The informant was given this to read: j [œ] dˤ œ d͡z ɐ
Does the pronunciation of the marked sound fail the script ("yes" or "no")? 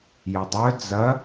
yes